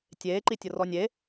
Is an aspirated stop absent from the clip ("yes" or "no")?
yes